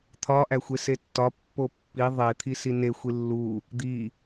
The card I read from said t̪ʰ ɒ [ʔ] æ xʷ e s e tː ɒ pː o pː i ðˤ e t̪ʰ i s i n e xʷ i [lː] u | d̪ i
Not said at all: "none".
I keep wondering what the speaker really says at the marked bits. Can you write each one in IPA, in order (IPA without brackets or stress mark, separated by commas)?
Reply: ʔ, lː